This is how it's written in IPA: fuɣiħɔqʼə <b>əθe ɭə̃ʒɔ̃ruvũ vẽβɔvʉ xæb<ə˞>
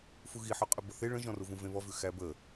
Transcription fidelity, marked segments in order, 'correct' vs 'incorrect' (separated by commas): correct, incorrect